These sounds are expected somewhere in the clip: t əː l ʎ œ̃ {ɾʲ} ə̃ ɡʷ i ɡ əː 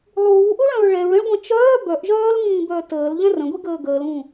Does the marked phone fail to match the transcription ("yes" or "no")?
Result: yes